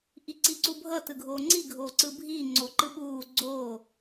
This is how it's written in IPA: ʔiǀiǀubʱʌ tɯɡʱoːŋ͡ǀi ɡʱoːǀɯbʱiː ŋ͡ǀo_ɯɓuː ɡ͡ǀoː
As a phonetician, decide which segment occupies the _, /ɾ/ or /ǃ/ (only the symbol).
ǃ